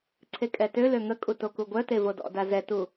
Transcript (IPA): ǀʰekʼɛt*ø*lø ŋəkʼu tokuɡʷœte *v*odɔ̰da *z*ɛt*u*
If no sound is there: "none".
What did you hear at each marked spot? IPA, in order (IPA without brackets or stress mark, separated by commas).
ø, v, z, u